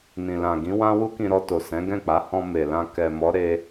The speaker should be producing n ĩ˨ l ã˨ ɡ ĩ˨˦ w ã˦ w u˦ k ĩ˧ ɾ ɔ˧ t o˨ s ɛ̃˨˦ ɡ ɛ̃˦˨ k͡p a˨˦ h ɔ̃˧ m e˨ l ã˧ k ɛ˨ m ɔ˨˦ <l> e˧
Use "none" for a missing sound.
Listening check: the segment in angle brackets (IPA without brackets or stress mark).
ɾ